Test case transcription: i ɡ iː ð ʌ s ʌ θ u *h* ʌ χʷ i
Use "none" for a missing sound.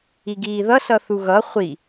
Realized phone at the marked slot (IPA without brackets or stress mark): ɣ